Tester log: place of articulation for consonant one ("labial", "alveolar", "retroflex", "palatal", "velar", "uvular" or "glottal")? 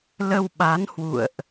alveolar